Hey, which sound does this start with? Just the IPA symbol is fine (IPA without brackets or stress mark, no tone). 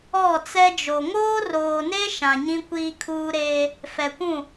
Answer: ɔ